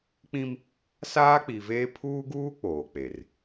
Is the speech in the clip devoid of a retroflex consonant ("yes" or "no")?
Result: yes